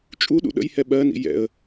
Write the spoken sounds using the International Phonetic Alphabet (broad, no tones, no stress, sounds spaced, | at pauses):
t͡ʃʼ u ɗ ṵ ɗ ə̰ j h ɛ ɓ ɜ n ḭ j ɛ̰ ə̯